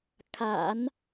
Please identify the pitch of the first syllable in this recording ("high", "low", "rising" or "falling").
low